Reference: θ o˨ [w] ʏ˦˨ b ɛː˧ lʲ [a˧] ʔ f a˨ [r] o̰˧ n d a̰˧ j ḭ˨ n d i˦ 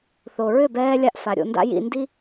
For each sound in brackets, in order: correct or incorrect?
incorrect, incorrect, incorrect

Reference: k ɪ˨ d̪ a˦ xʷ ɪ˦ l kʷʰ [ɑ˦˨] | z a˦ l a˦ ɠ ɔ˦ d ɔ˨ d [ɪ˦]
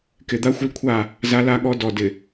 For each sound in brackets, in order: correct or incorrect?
incorrect, incorrect

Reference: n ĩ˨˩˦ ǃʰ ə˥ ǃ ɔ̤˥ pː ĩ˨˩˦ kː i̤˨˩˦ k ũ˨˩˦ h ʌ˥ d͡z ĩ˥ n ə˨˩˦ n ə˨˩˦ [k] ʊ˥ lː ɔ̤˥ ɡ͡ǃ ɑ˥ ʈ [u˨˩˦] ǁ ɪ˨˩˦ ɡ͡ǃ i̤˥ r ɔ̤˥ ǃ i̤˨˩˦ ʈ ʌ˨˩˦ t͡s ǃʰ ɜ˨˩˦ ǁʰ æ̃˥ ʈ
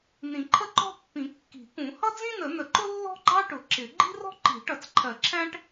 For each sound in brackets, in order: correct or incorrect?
incorrect, incorrect

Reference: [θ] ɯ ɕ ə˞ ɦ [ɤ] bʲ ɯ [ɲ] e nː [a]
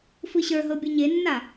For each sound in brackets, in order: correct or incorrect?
incorrect, correct, correct, correct

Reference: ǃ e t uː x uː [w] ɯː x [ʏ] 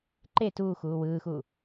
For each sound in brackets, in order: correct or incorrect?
correct, incorrect

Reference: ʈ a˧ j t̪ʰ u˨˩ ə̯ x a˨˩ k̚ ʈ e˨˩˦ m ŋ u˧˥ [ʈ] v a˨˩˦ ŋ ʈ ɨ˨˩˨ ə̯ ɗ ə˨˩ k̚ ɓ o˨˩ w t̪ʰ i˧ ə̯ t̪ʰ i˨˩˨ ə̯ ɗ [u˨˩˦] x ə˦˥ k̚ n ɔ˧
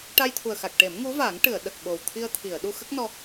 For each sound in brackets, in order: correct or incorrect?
incorrect, incorrect

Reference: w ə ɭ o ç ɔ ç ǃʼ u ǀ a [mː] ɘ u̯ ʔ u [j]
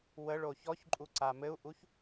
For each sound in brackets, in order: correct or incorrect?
incorrect, incorrect

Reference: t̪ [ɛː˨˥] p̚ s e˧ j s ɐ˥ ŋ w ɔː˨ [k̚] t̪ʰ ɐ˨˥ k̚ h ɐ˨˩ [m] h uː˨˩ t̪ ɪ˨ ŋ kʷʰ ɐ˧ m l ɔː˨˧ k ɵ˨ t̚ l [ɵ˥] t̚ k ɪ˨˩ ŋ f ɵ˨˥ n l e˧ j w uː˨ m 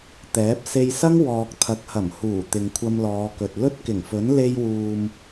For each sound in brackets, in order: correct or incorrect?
correct, correct, correct, correct

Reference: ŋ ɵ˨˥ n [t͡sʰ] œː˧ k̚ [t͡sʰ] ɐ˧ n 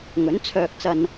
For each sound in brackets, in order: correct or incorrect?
correct, incorrect

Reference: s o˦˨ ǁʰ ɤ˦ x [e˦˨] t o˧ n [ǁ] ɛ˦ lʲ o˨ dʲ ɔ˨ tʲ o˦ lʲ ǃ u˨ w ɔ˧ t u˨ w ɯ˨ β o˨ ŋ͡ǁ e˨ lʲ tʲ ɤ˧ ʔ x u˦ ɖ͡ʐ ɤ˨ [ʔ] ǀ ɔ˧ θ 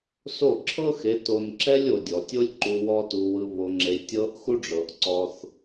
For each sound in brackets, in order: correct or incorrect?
incorrect, correct, correct

